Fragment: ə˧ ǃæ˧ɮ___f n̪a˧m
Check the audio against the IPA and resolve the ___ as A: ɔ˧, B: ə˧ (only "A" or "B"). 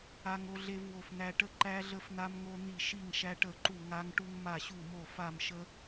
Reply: B